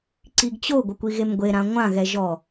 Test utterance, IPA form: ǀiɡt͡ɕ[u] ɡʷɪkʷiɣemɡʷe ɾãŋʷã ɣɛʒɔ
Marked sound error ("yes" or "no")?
yes